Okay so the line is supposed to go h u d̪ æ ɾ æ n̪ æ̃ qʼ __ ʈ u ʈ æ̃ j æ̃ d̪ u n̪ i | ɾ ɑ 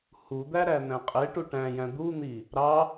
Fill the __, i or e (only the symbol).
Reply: e